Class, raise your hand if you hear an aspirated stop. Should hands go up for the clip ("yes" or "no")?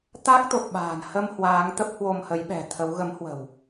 yes